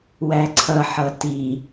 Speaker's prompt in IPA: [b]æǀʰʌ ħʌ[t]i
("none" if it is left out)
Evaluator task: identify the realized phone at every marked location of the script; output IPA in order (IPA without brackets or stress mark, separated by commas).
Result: w, t